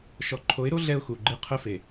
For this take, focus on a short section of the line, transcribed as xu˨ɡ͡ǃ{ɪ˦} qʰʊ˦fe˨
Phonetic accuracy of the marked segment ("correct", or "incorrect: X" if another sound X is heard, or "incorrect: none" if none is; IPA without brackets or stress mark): correct